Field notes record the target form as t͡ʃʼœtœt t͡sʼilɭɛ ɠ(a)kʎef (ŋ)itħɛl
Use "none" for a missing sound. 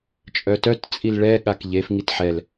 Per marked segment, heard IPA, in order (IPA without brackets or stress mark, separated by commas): a, ŋ